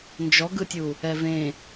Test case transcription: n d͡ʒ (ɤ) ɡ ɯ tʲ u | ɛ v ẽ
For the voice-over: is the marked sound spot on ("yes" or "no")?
no